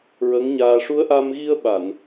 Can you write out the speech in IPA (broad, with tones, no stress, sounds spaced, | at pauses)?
ɹ ə˧˥ ŋ ɲ aː˧ ʂ u˧˥ ə̯ ʔ a˧ m ɣ i˧ ə̯ ɓ a˨˩˨ n